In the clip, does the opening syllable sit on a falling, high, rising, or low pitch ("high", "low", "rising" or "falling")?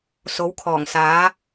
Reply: rising